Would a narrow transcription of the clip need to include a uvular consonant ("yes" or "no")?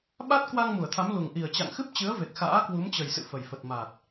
no